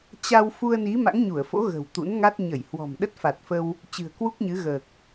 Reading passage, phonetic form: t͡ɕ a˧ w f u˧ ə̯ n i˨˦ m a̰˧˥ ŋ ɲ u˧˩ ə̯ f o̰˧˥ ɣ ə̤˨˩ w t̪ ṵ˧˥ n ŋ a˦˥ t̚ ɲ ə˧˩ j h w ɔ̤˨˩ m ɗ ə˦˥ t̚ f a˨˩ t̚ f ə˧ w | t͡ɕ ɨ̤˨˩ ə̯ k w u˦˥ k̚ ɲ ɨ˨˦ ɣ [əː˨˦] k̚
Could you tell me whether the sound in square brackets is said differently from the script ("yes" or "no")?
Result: yes